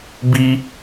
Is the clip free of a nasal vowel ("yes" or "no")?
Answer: yes